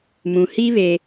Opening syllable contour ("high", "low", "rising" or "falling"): low